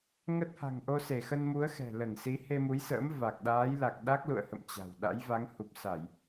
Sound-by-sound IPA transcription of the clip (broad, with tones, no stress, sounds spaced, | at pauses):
ŋ ə˦˥ t̚ h a̤˨˩ ŋ ʔ o˧ s e˧˩ x ə˧ n m u˨˦ ə̯ x ɛ̤˨˩ l ə˧˩ n s i˨˦ h e˧ m u˨˦ j s ə̰ː˧˥ m v a˨˩ k̚ ɗ aː˨˦ j l a˨˩ k̚ ɗ a˦˥ k̚ l ṵ˧˨ ə̯ h ə̰˧˨ m t͡ɕ a̤˨˩ w ɗ a̰˧˥ j v a˨˦ ŋ h u˨˩ p̚ s a˧˩˨ j